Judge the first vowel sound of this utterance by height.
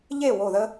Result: mid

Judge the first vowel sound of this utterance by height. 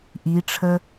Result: high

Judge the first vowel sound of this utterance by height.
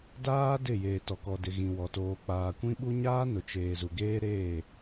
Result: low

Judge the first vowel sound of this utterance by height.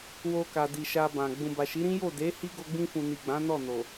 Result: mid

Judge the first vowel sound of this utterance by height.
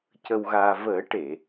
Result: mid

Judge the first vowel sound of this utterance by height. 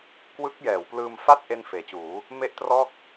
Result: high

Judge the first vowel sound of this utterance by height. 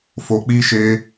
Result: mid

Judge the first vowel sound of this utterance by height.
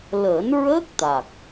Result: mid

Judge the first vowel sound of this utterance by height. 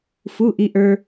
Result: high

